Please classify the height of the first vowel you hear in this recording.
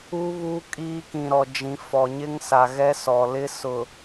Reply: high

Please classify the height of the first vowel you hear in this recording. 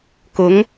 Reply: high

